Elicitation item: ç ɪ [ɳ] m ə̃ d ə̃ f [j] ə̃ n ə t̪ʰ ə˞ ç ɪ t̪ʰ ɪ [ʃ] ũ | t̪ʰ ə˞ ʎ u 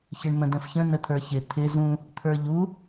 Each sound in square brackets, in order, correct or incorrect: correct, incorrect, incorrect

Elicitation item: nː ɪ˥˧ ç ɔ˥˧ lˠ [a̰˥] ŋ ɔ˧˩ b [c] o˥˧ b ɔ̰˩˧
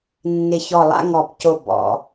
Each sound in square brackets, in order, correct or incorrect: correct, correct

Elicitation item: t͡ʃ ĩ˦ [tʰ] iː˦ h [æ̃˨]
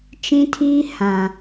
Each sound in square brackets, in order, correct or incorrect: correct, incorrect

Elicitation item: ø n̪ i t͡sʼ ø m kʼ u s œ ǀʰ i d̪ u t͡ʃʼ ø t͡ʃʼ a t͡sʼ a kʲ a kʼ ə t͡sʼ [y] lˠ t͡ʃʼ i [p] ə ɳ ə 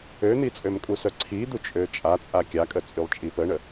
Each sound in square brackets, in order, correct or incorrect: correct, correct

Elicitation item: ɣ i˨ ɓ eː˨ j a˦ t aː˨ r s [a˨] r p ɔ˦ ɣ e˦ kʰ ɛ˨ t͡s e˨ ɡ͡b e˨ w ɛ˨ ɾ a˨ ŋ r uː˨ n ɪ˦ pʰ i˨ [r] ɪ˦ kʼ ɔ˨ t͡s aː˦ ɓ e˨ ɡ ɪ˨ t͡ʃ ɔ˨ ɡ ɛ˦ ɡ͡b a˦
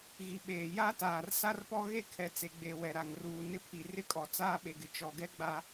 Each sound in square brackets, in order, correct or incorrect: incorrect, correct

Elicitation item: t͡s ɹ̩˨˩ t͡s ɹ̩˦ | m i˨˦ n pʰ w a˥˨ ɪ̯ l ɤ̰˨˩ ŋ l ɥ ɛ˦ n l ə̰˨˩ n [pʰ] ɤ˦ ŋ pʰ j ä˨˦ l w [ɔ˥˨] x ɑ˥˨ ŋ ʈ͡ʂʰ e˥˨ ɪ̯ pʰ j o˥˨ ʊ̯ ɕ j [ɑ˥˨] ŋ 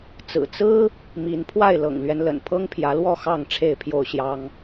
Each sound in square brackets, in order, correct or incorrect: correct, correct, incorrect

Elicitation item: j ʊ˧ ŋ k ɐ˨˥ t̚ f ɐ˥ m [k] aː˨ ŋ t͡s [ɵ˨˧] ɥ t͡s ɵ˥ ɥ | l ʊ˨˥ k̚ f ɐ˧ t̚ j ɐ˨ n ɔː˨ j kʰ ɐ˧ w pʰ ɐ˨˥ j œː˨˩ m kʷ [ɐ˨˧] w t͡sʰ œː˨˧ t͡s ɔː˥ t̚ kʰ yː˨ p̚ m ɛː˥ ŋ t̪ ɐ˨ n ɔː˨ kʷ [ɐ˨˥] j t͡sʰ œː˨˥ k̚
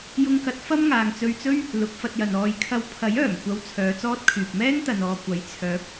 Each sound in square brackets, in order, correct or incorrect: incorrect, incorrect, correct, correct

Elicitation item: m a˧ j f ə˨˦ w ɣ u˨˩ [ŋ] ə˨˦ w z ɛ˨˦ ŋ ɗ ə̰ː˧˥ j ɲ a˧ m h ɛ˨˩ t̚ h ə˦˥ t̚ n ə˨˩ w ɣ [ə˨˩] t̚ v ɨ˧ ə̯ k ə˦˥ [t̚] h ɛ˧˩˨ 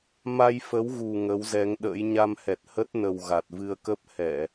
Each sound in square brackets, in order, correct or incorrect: correct, incorrect, incorrect

